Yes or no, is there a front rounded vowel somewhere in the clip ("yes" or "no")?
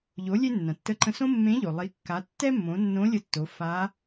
no